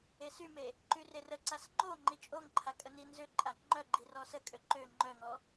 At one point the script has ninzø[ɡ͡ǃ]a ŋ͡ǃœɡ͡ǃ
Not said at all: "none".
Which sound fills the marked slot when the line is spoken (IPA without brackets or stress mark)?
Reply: ǃʼ